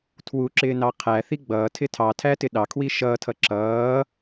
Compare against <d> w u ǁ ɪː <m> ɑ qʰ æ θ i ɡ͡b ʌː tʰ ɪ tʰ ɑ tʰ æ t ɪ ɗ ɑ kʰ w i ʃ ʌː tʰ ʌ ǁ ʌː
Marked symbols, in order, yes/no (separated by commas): no, no